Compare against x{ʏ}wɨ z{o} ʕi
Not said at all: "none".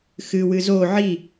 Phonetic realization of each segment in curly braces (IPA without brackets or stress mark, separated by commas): ɨ, o